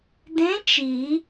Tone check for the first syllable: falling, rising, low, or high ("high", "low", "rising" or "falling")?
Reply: rising